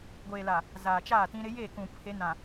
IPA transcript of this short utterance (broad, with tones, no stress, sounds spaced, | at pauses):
ɡʷ eː˨ l a˨ | z aː˨ t͡ʃ aː˦˨ t ĩ˦ ɾ ɪ˦ j e˦˨ k ũ˨ pʰ e˨˦ n ã˨